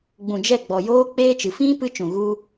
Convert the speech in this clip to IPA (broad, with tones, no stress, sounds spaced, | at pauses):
ɡ͡b ũ˨ d͡ʒ ɛ˦˨ ɡ͡b ɔ˨ j oː˦ k͡p eː˦ t͡ʃ ɨ˨ f ĩ˦ p ɨ˦ t͡ʃ ũ˨ ɣ u˦